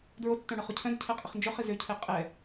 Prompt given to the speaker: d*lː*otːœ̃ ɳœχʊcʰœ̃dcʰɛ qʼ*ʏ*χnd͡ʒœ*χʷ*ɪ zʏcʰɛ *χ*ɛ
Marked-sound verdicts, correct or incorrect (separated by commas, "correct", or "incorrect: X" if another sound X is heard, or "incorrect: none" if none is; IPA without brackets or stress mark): incorrect: ɹ, incorrect: ɪ, incorrect: χ, incorrect: qʼ